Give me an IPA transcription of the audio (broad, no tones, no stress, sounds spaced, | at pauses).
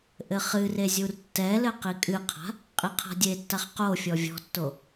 ʔ ɘ χ ɨ r e zʲ u r tː ɛ l ɘ q i kʼ ɨ qʰ a̤ | qʼ i qʰ a̤ dʲ e tː a χ q o fʲ ɔ vʲ ɔ̤ tː o